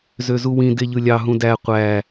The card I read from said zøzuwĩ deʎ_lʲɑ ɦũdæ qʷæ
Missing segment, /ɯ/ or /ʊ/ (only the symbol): ɯ